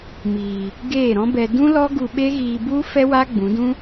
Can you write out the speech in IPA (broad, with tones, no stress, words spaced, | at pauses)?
miː˨ | ɡeː˦˨ɾɔ̃˦bɛ˧ dũ˦lɔ˦ ɡu˧ɓe˦ ɣiː˧bu˦ fɛ˦waː˦ ɡ͡bũ˨˦dũ˦